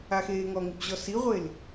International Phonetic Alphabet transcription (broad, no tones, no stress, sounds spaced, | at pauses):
a x eː ŋ ɔ ŋ ɪ b ʑ ɔ s i ʁʷ e l